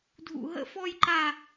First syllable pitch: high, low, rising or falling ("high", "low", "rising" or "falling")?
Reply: high